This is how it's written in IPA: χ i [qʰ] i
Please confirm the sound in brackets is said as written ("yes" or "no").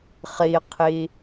yes